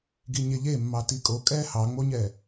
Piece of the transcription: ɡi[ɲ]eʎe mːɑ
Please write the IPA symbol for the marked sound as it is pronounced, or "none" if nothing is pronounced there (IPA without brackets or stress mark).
ɲ